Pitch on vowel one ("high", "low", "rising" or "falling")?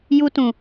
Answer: high